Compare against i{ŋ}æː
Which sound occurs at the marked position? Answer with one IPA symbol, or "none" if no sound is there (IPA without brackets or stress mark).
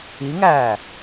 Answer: ŋ